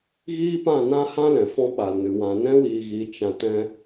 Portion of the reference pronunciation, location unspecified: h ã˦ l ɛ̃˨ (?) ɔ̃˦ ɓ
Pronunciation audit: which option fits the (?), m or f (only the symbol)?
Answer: f